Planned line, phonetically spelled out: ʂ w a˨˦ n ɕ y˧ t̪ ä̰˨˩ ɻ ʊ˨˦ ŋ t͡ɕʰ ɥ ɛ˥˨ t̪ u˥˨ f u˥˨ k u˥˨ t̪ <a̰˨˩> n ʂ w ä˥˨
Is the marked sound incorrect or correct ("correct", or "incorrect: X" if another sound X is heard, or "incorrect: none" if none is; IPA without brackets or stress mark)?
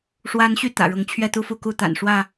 correct